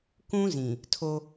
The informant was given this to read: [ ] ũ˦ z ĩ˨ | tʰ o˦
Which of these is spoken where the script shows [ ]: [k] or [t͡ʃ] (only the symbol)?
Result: k